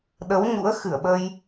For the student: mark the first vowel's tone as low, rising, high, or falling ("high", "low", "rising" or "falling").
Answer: rising